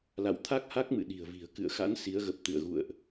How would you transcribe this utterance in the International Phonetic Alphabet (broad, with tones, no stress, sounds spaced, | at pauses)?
l a̰˧˨ w t̪ʰ a˦˥ k̚ h a˦˥ k̚ m ɨ̰˧˨ ɗ i̤˨˩ ə̯ v i̤˨˩ ə̯ k ɨ̰˧˨ ə̯ x a̰˧˥ n s i˨˦ ə̯ ɣ ə˨˩ p̚ t̪ ɨ̰˧˨ ə̯ ɣ ṵ˧˨ ə̯ ʔ